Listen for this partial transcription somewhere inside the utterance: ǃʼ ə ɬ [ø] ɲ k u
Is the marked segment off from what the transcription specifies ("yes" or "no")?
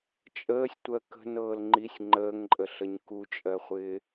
yes